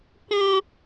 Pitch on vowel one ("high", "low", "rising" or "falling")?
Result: high